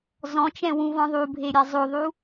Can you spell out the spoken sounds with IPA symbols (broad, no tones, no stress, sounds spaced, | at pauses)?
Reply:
z ɔ̃ t͡ʃ ɛ̃ w ũ v ɔ̃ ðˤ u bʱ e ɾʲ a zˤ o ðˤ u